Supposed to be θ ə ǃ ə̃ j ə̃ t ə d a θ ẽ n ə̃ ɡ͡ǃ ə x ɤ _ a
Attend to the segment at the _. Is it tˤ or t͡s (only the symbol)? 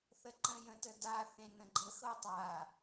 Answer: tˤ